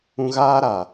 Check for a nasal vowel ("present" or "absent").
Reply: present